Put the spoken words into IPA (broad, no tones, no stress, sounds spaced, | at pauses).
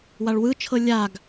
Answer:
w a ɭ w ɯ t͡ʃʰ ɤ lʲ a ɡ